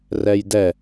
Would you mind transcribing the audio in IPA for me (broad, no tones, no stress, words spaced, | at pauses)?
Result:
rɛjdɛ